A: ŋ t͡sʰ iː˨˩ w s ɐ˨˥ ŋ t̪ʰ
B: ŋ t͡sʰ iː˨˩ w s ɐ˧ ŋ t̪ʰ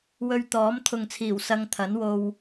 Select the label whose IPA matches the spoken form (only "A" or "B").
B